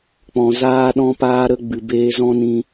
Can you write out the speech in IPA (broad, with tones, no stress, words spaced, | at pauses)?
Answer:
k͡pɔ̃˨ zaː˦ɗɔ̃˦ paː˦ɾə˦ ɡ͡bɨ˨beː˧zɔ̃˦nĩ˧